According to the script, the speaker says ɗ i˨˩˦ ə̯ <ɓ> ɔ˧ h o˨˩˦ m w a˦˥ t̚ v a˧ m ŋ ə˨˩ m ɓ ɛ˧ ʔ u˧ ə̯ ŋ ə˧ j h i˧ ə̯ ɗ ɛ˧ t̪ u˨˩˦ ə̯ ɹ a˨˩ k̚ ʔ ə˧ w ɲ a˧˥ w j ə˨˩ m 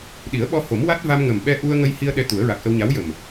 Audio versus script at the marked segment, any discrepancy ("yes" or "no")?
no